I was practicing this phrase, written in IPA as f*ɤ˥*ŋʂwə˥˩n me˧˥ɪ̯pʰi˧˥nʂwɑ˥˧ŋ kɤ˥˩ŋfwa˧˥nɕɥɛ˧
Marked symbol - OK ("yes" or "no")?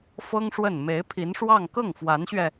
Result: yes